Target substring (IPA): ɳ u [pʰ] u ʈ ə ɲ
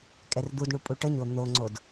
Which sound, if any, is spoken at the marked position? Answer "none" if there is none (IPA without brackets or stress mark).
pʼ